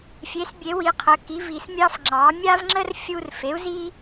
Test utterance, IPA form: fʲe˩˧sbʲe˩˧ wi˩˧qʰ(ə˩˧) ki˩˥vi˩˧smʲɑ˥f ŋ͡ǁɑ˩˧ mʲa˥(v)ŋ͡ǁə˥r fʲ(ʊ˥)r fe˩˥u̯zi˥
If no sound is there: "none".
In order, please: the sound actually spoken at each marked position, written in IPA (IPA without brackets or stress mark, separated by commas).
ə˩˧, v, u˥